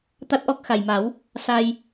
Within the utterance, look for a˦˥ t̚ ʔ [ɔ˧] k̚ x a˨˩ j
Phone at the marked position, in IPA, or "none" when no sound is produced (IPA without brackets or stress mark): ɔ˦˥